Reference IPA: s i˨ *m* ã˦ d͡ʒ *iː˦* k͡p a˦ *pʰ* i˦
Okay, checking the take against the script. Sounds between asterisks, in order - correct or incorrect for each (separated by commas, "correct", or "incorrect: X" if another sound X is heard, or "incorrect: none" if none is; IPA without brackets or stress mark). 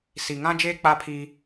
incorrect: ŋ, incorrect: eː˦, correct